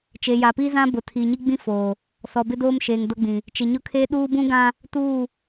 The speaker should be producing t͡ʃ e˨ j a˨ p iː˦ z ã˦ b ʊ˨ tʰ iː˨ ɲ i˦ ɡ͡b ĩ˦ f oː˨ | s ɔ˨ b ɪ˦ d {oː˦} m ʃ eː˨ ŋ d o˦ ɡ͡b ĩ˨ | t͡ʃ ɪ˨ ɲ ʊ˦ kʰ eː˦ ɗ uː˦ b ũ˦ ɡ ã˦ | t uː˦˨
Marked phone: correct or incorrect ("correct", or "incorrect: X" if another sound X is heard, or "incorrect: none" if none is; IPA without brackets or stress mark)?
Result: correct